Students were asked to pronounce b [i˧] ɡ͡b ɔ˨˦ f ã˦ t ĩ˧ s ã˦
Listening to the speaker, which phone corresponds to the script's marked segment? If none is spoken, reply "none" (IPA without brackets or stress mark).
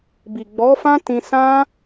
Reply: i˨